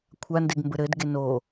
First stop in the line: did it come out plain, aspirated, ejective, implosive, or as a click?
aspirated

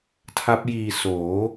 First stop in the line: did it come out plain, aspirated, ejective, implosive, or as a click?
aspirated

